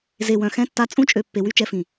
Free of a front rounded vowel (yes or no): no